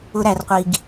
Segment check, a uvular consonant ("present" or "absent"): present